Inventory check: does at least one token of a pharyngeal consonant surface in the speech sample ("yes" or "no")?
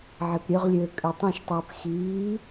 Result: yes